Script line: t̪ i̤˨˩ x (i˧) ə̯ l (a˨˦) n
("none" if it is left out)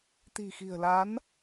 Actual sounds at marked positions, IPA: i̤˨˩, a˨˦

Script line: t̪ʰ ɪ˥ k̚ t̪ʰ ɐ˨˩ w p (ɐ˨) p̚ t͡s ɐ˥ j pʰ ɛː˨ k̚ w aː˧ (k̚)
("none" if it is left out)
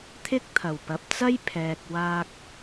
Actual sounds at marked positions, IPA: ɐ˨, k̚

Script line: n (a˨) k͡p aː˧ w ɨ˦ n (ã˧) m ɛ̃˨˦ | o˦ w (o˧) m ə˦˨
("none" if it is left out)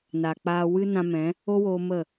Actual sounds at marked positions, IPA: a˨, ã˧, o˧

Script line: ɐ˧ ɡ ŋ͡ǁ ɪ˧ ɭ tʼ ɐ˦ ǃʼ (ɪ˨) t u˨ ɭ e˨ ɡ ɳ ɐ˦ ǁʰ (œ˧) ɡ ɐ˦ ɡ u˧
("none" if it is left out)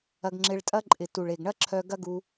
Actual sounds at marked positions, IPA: ɪ˨, œ˧

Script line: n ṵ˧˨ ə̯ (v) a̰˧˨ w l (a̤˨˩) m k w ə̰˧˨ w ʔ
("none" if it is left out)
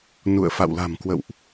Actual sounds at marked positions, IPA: f, a̤˨˩

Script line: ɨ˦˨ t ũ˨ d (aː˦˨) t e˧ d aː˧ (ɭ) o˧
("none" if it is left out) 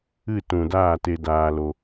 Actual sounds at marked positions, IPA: aː˦˨, l

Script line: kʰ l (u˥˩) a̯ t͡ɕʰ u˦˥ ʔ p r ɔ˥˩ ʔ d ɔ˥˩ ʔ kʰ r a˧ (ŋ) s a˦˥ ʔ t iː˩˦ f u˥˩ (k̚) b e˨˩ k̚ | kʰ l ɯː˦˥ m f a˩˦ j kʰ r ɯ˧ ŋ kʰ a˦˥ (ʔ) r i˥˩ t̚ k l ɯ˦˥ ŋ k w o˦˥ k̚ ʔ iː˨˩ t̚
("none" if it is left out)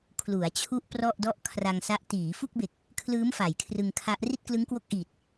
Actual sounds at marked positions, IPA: u˩˦, ŋ, k̚, ʔ

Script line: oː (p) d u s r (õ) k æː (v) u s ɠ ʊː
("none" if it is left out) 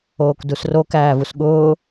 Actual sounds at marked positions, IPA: k, o, v

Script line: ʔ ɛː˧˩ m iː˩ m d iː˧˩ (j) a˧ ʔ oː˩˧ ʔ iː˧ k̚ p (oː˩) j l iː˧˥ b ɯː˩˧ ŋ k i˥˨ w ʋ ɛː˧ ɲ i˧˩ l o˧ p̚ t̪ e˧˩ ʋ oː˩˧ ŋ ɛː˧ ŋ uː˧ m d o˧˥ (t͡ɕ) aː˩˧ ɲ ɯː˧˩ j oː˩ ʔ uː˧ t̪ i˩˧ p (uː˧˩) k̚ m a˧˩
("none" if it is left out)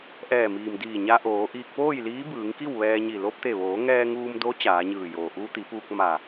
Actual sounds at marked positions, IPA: ɲ, oː˥˨, t͡ɕ, uː˧

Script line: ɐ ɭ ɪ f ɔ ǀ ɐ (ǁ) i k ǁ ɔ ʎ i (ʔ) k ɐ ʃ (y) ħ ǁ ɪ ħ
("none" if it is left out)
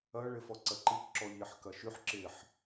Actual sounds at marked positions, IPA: ǃ, ħ, y

